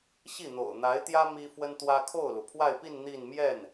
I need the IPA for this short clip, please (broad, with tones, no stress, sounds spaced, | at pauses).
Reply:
ɕ i˥˩ n̪ o̰˨˩ ʊ̯ n̪ a˧˥ ɪ̯ t̪ j ä˥ m i˥ f w ə˥ n t̪ w ä˥ kʰ o˥˩ ʊ̯ l u˩ pʰ w a˥˧ ɪ̯ p i˥˧ n n̪ i˥˧ n m j ɛ˥˩ n